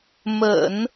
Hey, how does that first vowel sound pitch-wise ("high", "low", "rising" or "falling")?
low